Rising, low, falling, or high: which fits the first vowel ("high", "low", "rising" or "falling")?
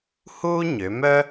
high